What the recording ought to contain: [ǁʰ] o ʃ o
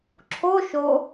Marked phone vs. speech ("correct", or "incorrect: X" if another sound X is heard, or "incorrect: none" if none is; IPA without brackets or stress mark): correct